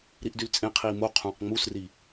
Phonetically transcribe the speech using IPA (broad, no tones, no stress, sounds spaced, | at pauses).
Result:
ɾ i ʔ d y l t͡sʼ ẽ qʰ iː m o qʰ ũː q ŋ͡m u s r i